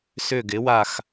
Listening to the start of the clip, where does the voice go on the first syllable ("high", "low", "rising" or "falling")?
falling